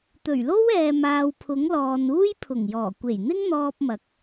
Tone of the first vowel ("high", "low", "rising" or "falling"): low